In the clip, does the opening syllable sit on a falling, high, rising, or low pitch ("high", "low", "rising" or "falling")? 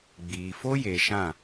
low